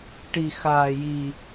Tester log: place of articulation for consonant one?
retroflex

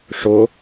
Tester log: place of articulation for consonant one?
retroflex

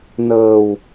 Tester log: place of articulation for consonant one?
alveolar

